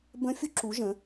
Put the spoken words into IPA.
bə̃˦˥fʲu˦˥ǁu˨˦ ʒə̃˨˦

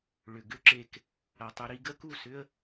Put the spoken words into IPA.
ɭʏ˨ɡʏ˦ǁe˧k | ɐ˨tˤu˧ ɾi˧ɡə˦ku˦˨sʏ˦ə̯

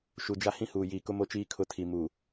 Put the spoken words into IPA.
ʃu˨d͡ʒa˦ hĩ˦huː˨jiː˨kʊ˦ mo˦t͡ʃiː˦ kʰʊ˦tʰi˨ muː˨

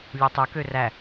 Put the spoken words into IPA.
lʲøtˤøkø ræ

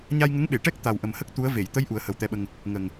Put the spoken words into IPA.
ɲa˧jŋə˧˥ŋɓe˨˩˨ʈɛ˦˥k̚ t̪a˨˩wʔə˨˩mhə˦˥k̚ t̪u˧˥ə̯ ve˨˩˨jt̪ə˧˥j ʔu˨˩˦ə̯hə˨˩˦wt̪ɛ˧˥ɓə˧ŋ | ŋə˨˩ŋ

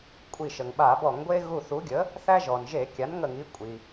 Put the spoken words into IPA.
kʷʼi˧˩ʃə˩ŋɓa˧˩˧ bɔ˧˩˧ŋɡʷe˦ ɣu˧˩ θu˩˥ɡʲə˩˥ | θæ˦ʒɔ˩nʒe˧˩˧ kʲa˩˥nŋə˧˩ŋi˩˥ kʷʼi˩

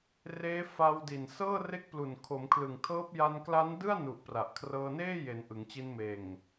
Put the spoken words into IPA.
reː˦˥ fa˧wdi˨˩n sɤː˥˩re˦˥k̚plu˨˩n kʰo˩˦mkʰlɯ˨˩ŋtʰɤː˦˥p̚ ja˧nkla˦˥ndɯ˥˩a̯ nu˨˩ʔ pra˨˩ʔ kʰrɤː˧neː˥˩je˩˦n ʔɯ˩˦ŋt͡ɕi˧nmeː˨˩ŋ

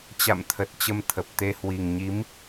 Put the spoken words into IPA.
t͡ɕa̰˧˨mt̪ʰə˨˩t̚ t͡ɕə˧mt̪ʰə˨˩p̚t̪e˧ hwi˨˩ŋɲi˨˦m

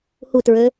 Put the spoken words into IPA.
hutɹø

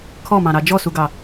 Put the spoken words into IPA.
kʰɔmɑ̃ɾɑ d͡ʒɔsuɡɑ

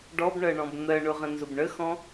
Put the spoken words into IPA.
ɖɔbɳɜɳɔ̃b n̪ɜɳʊʁə̃ nzʊbɳəxɔ̃

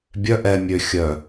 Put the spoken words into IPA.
bʲœ ʔɛ mʲø xʲœ

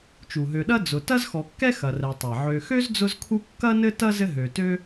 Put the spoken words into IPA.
t͡ʃu˩ɦø˨ɗɐ˥ d͡zʊ˨ tɐ˥zxɔ˨kːɛ˥ xɐ˨rɛ˨tˤɛ˩ ʕø˨xø˥zd͡zʊ˦zkʰu˦ kːɐ˥nɘ˥ tɐ˥zɘ˦ɦø˨ tø˦

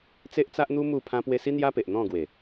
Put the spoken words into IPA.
t͡se˦ʔt͡sa˦ʔn̪u˦ mu˥˧pʰã˦pwe˦ si˦n̪ja˦pe˨ʔ n̪ɔ̃˥˧ɡwe˨˩

